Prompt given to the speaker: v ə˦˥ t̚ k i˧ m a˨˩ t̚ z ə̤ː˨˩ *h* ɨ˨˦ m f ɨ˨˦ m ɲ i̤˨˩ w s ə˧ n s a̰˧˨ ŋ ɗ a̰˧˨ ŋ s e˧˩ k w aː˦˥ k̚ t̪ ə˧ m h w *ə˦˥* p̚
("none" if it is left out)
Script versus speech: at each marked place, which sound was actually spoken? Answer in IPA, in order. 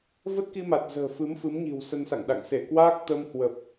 f, ə˨˩

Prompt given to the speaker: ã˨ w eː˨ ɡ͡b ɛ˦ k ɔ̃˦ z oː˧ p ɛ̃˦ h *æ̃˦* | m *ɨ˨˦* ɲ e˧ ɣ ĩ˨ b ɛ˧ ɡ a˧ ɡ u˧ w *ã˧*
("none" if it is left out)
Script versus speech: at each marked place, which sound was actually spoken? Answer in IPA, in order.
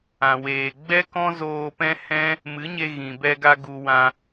ɛ̃˦, ɨ˨˦, ã˧

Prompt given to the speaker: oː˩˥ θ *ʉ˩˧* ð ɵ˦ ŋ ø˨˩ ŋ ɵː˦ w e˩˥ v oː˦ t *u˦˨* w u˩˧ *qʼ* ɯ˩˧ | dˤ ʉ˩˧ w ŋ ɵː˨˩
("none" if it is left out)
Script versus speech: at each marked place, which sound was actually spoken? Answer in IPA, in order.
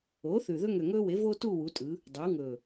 ʉ˨˩, u˦˨, tʼ

